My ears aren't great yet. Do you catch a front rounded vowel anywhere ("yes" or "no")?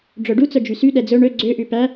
yes